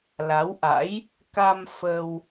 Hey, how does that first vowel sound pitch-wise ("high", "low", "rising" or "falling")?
rising